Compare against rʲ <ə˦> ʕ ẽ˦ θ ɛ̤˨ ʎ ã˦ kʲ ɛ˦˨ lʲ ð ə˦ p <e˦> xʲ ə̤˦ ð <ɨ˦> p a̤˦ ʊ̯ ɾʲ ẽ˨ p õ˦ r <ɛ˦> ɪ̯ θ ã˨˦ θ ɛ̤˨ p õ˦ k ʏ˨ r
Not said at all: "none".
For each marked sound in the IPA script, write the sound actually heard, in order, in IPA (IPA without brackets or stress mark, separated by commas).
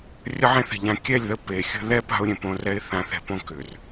ə˦, e˨, ɛ˦, ɛ˦